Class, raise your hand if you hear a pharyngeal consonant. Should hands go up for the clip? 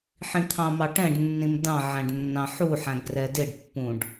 yes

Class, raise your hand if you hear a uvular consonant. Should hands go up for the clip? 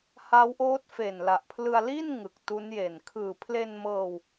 no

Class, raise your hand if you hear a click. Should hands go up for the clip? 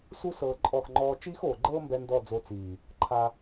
yes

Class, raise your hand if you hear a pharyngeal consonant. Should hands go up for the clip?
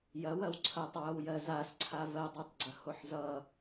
yes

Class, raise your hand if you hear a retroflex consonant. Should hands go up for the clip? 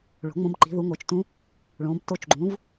yes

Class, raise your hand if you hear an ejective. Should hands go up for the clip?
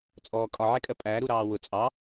yes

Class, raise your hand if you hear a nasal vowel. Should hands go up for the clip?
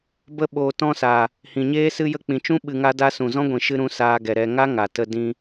yes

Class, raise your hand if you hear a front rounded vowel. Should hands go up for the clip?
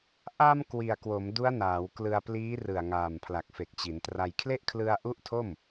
no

